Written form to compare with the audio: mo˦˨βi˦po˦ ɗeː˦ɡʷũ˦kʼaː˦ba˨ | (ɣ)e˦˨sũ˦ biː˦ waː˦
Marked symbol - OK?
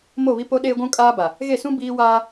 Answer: yes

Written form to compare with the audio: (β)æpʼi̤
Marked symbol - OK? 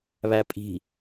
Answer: yes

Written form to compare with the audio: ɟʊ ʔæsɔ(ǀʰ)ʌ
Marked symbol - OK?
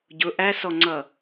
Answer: no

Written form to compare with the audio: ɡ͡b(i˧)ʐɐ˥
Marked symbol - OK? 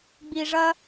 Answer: yes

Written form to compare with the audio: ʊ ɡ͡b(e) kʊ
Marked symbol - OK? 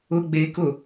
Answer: yes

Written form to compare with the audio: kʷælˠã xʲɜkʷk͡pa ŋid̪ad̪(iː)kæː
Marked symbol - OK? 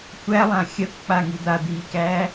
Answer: yes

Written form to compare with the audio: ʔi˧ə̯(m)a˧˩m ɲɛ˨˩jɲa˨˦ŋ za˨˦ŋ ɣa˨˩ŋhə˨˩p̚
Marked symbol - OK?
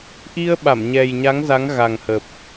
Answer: no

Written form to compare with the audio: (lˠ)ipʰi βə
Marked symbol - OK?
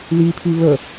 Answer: no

